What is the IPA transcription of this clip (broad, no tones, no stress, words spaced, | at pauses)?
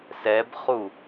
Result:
sɛbχu